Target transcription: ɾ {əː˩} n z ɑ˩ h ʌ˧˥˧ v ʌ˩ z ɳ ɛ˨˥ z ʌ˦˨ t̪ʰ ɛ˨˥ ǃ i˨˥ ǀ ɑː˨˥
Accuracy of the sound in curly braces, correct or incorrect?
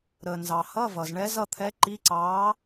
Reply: correct